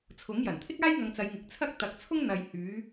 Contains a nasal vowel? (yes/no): no